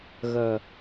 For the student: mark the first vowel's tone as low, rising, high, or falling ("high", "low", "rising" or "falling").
low